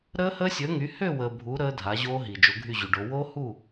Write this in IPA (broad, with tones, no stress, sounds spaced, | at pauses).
ɾ əː˦˥ h əː˦˥ sʲ əː˨˥ ŋ y˨˥ h ø˥˨ w əː˨ bʱ u˨˥ ɾ əː˦˥ dʱ a˨˥ ʑ oː˦˥ ɦ i˨ d͡ʒ o˨˥ ɡʱ y˥˨ ʑ y˨ ɖ o˨˥ w o˦˥ h u˥˨